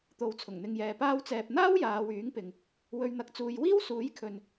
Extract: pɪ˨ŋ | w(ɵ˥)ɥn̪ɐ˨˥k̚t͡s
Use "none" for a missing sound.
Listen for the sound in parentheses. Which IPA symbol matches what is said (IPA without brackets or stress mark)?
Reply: ɵ˨˧